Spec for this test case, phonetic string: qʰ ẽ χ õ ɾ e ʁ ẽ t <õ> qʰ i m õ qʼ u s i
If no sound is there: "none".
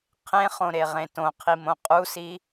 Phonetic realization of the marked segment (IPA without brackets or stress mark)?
õ